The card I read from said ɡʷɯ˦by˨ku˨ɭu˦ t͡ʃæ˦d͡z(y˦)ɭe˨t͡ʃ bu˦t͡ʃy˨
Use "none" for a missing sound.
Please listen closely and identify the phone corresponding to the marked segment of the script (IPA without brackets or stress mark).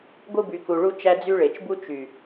y˦